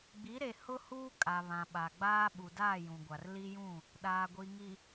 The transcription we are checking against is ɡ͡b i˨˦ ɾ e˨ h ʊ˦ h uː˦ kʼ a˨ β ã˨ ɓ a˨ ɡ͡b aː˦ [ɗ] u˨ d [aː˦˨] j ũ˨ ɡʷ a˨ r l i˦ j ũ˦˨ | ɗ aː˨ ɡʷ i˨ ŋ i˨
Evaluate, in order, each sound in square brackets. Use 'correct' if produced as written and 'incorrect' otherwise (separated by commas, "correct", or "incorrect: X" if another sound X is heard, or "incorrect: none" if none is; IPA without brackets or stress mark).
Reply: incorrect: ɓ, correct